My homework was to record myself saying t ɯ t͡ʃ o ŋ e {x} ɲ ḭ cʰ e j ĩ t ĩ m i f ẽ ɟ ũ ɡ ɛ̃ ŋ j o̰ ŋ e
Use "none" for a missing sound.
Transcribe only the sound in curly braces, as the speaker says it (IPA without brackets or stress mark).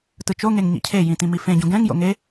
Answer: ŋ